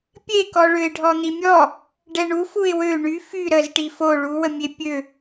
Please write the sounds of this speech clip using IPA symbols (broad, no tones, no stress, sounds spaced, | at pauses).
pʲ e k ɔ ɭ ø ɪ̯ ɖʱ ɔ n̪ i mʲ ɔ | ɖ ɛ ɳ u f u ɪ̯ w ø ɳ y f y ɾ ə z ʈ i f o ɭ u w ə mʲ e pʲ ø